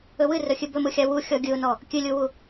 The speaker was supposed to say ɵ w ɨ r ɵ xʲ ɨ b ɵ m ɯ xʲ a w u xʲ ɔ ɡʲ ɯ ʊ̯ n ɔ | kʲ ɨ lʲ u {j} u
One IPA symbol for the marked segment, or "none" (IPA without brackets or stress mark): w